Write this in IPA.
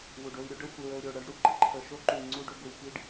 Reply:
wu˩ɖ o˨i̯ɾʲu˦ɖə˦xʷi˩ ɹə˨u̯ɾʲo˩ ɽə˦ɖ ɽu˨ɡ͡ǃə˥ǃʰə˨ ʃo˥ǃu˨i̯ŋ͡ǀu˦ɖo˦ ɡʷi˨pi˥ɖ

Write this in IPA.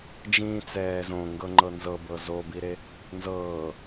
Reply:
d͡ʒĩːt͡sɛːzõ ŋɡɤŋ͡ǃɤnzɤbɤ zobiɾe | nzɤː

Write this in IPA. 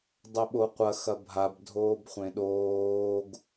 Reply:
dˤɵɓoqʷɐ xɐbʱab dʱoːbχʷẽɗoːɡ

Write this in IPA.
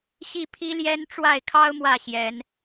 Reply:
ɕi˥˨pʰi˦ljɛ˦n ʈ͡ʂwa˥˨ɪ̯kʰɑ˦ʊ̯ mwä˥˨ɕjɛ˨˦n

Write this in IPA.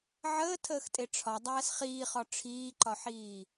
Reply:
ʕəːtʰəːxtʼe ʈ͡ʂʰɒdˤæːs χiːχɒ ʈ͡ʂʰiːǃɒħiː

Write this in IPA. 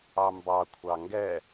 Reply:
ɑmbɑ kʷʰɑŋɡɛ

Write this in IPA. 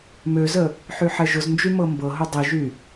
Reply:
møzə | ħyħɛʒʊznd͡ʒy mɤmbɤɦʊ dˤiʒy

